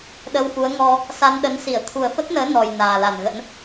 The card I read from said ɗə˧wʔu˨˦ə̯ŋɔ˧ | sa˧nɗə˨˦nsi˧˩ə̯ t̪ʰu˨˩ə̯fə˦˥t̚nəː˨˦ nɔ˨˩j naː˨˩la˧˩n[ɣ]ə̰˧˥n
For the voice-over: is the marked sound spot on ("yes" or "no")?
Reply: yes